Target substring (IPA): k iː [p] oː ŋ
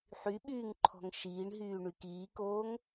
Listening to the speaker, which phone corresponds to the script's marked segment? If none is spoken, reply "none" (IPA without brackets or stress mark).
k